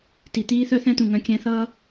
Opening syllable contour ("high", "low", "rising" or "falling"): low